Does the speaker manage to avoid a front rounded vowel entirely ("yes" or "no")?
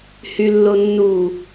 no